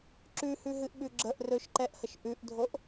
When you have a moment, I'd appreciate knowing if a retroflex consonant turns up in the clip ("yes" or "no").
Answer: no